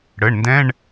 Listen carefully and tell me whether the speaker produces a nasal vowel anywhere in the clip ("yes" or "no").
yes